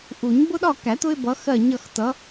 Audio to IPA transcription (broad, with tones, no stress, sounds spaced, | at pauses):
ʔ u˨˩˦ ɲ b ʊ˦ ɗ ɒ˦˨ k æ˨˩˦ t ʊ˦ ɪ̯ b ʌ˨˦ x ɜ˦˨ ɲ ʌ˦˨ x t ʌ˨˦